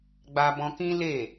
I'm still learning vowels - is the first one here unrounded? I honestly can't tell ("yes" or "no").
yes